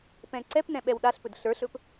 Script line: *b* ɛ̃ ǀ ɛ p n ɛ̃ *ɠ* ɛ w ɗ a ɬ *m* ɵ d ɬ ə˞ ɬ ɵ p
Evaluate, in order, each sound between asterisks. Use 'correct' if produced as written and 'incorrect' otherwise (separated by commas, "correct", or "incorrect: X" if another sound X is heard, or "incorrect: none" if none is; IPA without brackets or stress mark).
incorrect: p, incorrect: ɓ, incorrect: p